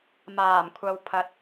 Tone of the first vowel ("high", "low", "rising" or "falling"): low